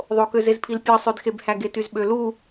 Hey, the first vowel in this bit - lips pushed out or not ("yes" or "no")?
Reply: yes